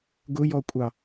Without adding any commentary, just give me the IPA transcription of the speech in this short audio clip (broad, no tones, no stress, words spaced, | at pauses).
ɡʊjɔkʷʼɑ